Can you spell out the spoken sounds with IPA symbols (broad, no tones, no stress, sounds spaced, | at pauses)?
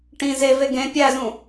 ʈ ĩ z e v e ɡ ẽ pʲ æ z ũ